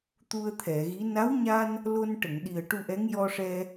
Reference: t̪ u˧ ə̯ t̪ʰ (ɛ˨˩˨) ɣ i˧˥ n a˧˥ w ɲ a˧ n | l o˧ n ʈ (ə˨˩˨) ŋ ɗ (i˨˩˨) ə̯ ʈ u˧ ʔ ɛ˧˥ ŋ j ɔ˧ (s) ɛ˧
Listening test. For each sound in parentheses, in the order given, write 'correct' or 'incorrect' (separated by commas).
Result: correct, correct, incorrect, incorrect